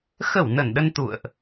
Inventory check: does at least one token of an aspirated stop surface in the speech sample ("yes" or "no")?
no